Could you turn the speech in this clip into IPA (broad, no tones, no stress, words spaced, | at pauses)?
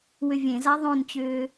wʏvʲẽza ðˤõnt͡ɕʏː